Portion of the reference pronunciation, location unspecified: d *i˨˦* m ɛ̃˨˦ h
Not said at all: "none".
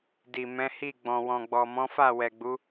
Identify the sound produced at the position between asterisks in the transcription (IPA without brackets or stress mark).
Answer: i˨